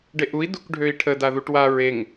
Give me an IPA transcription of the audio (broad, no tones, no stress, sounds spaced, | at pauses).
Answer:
ɖ e ʔ u i̯ d u k ɖʱ ø i̯ ʈʰ ə d a ð u ʈ w a ɹ e ŋ